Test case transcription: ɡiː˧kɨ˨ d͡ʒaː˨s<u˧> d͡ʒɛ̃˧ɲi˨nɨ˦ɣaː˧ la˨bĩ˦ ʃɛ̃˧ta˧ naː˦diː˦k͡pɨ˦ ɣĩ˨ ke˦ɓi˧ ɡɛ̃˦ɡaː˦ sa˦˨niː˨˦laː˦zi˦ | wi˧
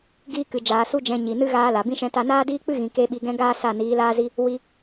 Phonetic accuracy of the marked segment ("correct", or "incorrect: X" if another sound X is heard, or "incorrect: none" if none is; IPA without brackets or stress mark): correct